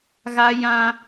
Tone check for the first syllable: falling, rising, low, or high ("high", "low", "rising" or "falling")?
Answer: high